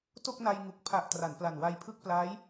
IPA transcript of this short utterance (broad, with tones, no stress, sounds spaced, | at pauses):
t o˥˩ k̚ n a˧ j ŋ u˨˩ k̚ pʰ a˨˩ ʔ t r a˩˦ n p l a˨˩ n w a˧ j pʰ ɯ˥˩ k̚ p l aː˦˥ j